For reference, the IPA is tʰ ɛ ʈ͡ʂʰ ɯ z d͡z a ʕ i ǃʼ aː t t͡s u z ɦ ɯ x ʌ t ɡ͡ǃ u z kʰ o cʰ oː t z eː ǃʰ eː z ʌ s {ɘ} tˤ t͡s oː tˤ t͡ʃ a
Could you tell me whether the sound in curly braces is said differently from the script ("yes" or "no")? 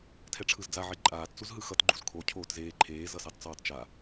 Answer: yes